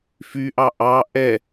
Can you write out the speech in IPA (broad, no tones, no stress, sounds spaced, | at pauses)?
f y ʔ ɑ ʔ ɑ ʔ ɛ